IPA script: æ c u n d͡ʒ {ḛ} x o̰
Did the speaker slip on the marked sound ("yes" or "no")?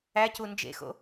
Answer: no